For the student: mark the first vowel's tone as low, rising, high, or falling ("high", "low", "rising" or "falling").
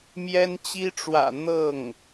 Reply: high